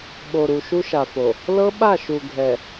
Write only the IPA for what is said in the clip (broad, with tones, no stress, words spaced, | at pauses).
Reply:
ɓo˨ɾu˨ ʃu˦ʃa˨fo˨ | lɤ˦ɓa˦˨ʃu˨ ɡʱɛ˨